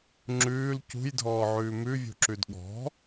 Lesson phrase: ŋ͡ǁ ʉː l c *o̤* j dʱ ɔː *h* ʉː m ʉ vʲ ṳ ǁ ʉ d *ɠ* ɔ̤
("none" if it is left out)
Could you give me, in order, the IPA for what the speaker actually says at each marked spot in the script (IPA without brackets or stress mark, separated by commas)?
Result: ṳ, ʕ, ɠ